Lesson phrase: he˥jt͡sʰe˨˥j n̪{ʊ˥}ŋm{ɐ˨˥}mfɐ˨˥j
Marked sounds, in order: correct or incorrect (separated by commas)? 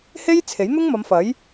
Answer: correct, incorrect